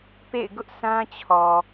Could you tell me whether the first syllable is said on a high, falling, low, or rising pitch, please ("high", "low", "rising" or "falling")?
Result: falling